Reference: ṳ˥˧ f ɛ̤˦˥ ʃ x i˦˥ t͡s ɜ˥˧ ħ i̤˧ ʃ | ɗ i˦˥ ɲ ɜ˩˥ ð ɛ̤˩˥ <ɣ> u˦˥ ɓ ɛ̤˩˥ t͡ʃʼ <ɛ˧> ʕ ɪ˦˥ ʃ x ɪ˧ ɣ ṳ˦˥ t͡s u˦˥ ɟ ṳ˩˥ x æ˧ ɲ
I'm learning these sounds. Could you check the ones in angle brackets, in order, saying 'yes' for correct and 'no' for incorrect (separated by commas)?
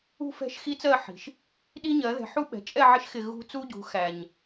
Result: no, no